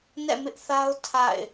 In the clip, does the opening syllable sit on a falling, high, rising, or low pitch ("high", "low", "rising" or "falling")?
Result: falling